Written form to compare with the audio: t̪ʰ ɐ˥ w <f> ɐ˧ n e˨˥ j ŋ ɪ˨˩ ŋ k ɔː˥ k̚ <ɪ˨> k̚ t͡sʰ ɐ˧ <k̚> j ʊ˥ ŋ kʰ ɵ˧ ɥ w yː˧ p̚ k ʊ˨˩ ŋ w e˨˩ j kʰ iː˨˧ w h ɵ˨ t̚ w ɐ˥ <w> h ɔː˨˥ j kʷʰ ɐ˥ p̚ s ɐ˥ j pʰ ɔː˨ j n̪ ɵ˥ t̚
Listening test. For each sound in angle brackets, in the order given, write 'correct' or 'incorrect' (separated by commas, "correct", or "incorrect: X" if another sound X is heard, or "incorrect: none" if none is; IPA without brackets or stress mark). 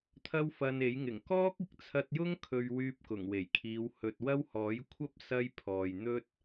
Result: correct, incorrect: ɪ˧, incorrect: t̚, correct